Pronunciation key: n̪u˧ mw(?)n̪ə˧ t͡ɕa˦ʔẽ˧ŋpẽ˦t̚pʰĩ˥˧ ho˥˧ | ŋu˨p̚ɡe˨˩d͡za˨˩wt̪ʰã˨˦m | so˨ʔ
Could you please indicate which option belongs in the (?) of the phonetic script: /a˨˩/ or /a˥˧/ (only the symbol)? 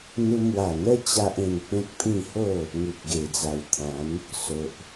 a˨˩